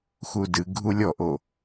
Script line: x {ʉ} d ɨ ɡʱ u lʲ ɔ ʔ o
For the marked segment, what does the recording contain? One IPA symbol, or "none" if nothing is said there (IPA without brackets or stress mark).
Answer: u